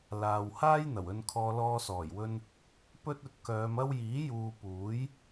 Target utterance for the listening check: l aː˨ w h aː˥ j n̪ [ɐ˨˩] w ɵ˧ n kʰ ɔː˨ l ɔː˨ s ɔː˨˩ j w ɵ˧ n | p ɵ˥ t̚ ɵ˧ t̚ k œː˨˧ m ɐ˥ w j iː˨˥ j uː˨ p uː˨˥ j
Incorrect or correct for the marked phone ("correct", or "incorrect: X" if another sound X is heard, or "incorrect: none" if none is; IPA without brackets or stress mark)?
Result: correct